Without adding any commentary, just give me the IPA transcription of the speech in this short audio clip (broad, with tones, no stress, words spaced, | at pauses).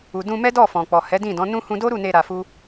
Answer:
u˨ dũ˧mɛ˦ dɔ˦˨fɔ̃˨k͡pɔ˨ hɛ˨˦dĩ˦˨dɔ̃˨˦nũ˦ hũ˧do˦ɾu˦˨ne˧ ɾa˧fu˦